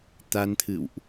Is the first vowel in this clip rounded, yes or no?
no